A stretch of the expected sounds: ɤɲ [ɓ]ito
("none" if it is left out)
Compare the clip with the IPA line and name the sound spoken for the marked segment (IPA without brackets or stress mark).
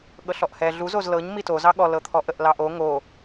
m